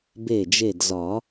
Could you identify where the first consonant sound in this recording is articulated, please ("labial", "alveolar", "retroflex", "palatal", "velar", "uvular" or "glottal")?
labial